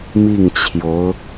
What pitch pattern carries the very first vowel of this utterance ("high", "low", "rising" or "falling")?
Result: falling